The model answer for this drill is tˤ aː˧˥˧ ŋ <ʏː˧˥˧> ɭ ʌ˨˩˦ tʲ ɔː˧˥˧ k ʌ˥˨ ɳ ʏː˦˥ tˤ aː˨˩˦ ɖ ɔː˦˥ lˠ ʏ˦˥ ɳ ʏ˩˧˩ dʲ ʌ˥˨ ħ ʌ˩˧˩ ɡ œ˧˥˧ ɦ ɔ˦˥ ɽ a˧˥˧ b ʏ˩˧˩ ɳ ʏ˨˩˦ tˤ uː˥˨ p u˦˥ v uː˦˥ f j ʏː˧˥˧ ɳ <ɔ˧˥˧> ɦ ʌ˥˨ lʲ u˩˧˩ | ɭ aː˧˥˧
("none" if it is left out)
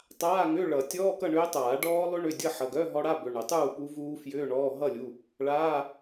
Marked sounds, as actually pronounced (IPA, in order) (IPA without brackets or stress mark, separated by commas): ʏː˧˥˧, ɔː˧˥˧